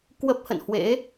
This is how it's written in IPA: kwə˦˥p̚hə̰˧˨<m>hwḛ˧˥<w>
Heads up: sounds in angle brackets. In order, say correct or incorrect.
incorrect: n, incorrect: none

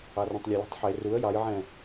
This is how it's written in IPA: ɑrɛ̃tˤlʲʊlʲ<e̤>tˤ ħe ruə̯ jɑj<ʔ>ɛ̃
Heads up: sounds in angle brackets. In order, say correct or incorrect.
correct, incorrect: ʕ

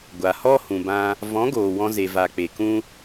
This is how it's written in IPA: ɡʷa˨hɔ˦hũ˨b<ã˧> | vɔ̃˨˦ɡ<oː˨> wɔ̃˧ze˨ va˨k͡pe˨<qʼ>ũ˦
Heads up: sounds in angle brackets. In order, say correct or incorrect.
correct, correct, incorrect: k

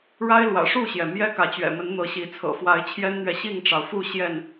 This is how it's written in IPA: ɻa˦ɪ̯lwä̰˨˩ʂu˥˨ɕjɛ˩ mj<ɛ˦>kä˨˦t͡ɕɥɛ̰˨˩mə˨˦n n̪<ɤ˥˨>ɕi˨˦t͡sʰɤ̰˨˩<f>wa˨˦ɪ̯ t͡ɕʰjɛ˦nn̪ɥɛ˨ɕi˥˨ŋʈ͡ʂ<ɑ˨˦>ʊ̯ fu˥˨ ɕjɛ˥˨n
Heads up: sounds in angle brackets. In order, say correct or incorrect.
correct, incorrect: ɤ˨˦, correct, incorrect: ɑ˩

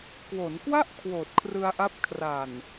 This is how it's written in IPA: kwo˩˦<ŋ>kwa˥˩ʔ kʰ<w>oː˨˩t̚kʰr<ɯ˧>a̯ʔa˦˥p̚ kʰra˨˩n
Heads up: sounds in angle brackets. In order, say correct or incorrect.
incorrect: n, correct, correct

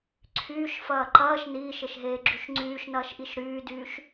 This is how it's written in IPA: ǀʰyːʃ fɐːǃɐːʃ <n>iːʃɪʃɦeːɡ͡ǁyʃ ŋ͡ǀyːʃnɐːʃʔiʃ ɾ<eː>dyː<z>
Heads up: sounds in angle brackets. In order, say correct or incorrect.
correct, incorrect: yː, incorrect: ʃ

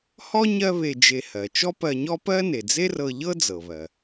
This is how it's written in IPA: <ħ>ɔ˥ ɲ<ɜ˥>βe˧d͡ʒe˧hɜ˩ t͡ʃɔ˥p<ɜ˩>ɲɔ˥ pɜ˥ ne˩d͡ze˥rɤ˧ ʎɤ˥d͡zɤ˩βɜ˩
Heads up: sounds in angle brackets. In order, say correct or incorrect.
incorrect: h, correct, incorrect: ɜ˧

